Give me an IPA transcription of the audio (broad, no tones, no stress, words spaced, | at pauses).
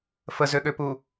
fəzøɠøpu